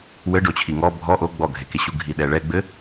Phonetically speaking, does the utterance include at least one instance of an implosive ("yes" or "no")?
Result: yes